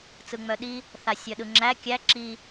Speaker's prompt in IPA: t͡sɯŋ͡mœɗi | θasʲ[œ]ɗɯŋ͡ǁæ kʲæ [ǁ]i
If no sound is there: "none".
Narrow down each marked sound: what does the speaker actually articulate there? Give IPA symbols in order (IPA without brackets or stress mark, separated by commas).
œ, ǁ